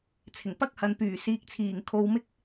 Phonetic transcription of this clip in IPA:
t͡sʰ ɪ˨˩ ŋ p ɐ˥ k̚ h ɐ˨ n p yː˨˩ s iː˨ k̚ t͡sʰ iː˨˩ ŋ kʰ o˨ w m ɪ˥ k̚

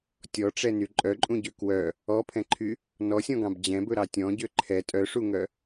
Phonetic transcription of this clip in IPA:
tʲ ɔ ʈ͡ʂ ɛ n y ǃʼ œ ǃʼ ũ ɟ ø k w œ | ɔ pʰ ɛ̃ ǃʰ y | n ɔ sʲ ɔ̃ ɡ ɑ̃ b d͡ʑ ɛ̃ b ɵ ɾ ɑ tʲ ɔ̃ ɟ ø ǃʰ ɛ tʼ œ ʂ u ŋ œ

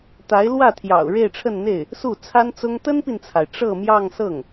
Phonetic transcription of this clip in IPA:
t̪ a˧˥ ɪ̯ l w ä˥˩ t̪ʰ j ɑ̰˨˩ ʊ̯ ɻ e˥˧ ɪ̯ ʈ͡ʂʰ ə˥˧ n n̪ e˥˩ ɪ̯ | s u˥˩ t͡sʰ a˥ n t͡s ʊ˥ ŋ t̪ ə˥ n p i˨ n t͡sʰ a˩ ɪ̯ ʈ͡ʂ ɤ˥˧ m j ɑ˥˧ ŋ s ɤ˥˩ ŋ

